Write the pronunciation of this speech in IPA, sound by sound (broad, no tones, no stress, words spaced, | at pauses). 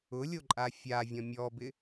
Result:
ʊlʲoǃʼa fʲavʲɔ̃ mʲɔbɪ